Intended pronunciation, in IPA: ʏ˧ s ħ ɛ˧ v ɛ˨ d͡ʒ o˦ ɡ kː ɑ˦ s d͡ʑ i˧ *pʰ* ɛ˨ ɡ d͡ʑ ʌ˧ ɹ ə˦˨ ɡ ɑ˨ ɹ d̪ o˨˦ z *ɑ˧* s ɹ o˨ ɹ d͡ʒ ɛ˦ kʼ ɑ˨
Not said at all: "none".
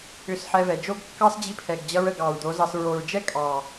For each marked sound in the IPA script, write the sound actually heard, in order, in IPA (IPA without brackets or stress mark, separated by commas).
pʰ, ɑ˧